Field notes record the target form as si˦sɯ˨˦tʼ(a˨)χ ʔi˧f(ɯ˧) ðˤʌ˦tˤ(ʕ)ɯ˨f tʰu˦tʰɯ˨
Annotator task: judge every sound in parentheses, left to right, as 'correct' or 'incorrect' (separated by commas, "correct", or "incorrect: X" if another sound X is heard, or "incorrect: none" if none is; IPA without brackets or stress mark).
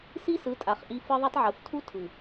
correct, incorrect: ɯ˦, correct